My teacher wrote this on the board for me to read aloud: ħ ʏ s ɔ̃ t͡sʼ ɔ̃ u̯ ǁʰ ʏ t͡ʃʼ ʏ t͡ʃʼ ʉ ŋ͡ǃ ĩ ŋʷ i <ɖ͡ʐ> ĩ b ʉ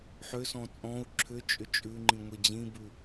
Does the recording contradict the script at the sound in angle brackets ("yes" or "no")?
yes